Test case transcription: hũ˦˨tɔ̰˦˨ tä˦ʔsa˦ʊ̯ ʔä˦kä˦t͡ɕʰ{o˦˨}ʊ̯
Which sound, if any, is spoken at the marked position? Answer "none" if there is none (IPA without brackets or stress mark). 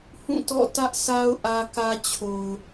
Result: o˨